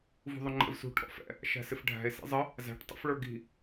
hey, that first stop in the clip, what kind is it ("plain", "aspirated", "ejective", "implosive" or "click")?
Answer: click